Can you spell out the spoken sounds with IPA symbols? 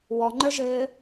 w ɔ ŋ͡ǃ ə˞ ʒ ɘː

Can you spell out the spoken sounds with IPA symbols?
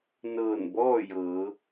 n ɤː˧˩ n b ɔː˥˨ j ɤː˩˧

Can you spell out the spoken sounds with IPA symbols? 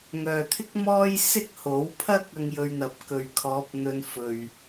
ŋ œː˨ t̪ʰ ɪ˥ k̚ m ɔː˥ j s ɪ˥ k̚ h o˨˥ w pʰ ɐ˥ k̚ ɐ˥ ŋ j ɵ˧ ɥ n̪ ɐ˨˥ p̚ k ɵ˨ ɥ kʰ ɔː˨˥ p̚ n̪ ɵ˧ n f ɵ˨ ɥ

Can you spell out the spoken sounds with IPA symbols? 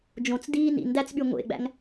d͡ʒ õ t͡s d iː n ḭ n d æ t͡s ɓ y ŋʷ ḛ ɡ͡b æ̰ ŋ

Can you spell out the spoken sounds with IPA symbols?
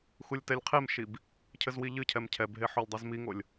x u lʲ t ɛ lʲ qʰ e m ʃ i b | cʰ ɘ z w i ʎ ɨ cʰ ɛ m cʰ ɛ b ɦ e ħ o lʲ dˤ i z m i ŋ o lʲ

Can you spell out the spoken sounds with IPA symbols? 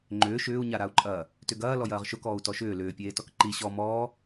ŋ͡ǃ ʏː ʃ ʏː u̯ ɲ a ɾ a u̯ ǃʼ ɐː | t ʏ ɡ ɐː l ɔ j ɐː ʁ ʃ ʊ k ɔː u̯ t ɔ ʃ ʏː l ʏː pʲ eː t ɔ k ǃ i ɕ ɔ m ɔː

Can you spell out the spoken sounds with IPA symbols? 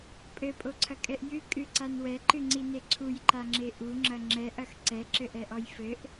pʼ ɘ pʼ o ǀʰ ɐ kʼ ɛ ʔ j ɨ kʼ ɨ ǀ a n w ɛ ǃ ɨ ŋ͡ǀ i n e ǀʰ u j ǃ a ŋ͡ǁ e ʔ u ŋ͡ǁ ɐ ŋ͡ǁ ɛ ʔ ɐ x ǀ ɛ ǁ ɘ ʔ ɛ ʔ ɔ j f ɘ ʔ

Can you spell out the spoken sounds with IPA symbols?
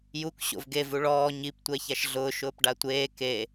j u k ɕ o̰ v ɡ e v u ɭ ɔː ɲ i p tʷ ɛ ç a ʃ ɮ ʊː ʃ ʊː p ɖ a tʷ eː k e

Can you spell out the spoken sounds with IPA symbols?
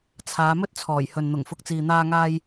t͡sʰ aː˨˧ m ɵ˥ t̚ t͡sʰ ɔː˨˩ j h ɵ˨ n n̪ ʊ˨˩ ŋ f ʊ˨ k̚ t͡s iː˨ n̪ aː˧ ŋ aː˧ j

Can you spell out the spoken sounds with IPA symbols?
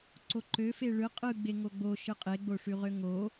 ǀ o ǃ ø f e ɭ ɯ qʼ ɯ ɡ͡b e ŋ o ɡ͡b o ʃ ɯ qʼ e ɡ͡b o ʂ y ʁ ø ŋ o

